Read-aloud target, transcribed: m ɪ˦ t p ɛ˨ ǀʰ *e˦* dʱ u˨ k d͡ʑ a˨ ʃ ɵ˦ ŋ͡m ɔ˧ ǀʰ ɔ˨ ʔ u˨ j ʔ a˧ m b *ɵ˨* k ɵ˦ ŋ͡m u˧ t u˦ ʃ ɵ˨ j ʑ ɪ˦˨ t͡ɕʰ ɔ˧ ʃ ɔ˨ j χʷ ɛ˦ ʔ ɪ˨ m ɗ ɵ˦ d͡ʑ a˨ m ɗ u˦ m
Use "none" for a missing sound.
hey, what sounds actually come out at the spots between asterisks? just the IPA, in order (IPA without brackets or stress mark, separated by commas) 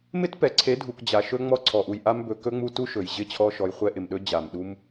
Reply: e˨˦, ɵ˨